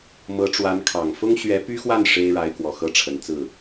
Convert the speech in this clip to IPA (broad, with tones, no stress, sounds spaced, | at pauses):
m ɤ˧˥ ʈ͡ʂ w a˧˥ n kʰ ɑ˨˩ ŋ f ʊ˥ ŋ ɕ ɥ ɛ˧˥ p y˥ x w a˥˩ n ʂ e˥ ɪ̯ ɻ a˧˥ ɪ̯ k w ɔ˨˩ x ɤ˥˩ ʈ͡ʂʰ ə˨˩ n t͡s ɹ̩˥˩